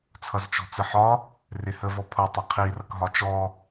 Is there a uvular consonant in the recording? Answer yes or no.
yes